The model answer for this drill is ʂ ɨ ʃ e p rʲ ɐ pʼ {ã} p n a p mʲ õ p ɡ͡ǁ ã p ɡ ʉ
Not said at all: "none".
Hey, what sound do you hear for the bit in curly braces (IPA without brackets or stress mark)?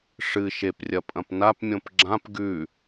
ɐ̃